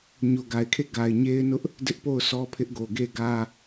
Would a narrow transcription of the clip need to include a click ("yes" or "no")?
no